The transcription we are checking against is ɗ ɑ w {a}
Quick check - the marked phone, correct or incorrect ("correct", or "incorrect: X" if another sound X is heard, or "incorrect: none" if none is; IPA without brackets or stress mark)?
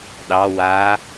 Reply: correct